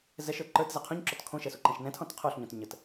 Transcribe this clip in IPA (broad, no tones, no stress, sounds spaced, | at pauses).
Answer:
z ɛ ʃ ə˞ ǃ ə˞ t z ɛ qʰ õ ɲ ǁ ɔ t kʰ õ ʃ ɛ s u ǃ ɛ̃ ʃ n ɛ̃ tʰ ɔ̃ t qʰ o ɬ ɲ õ t ɲ ə t